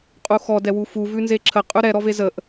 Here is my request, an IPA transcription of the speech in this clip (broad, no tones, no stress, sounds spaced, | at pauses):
qʼ u x ɔ d ɛ w u f u v ʉ n z e ǁʰ ə qʼ ʉ ɾ ɛ ɾ ɔ v e z ə ʔ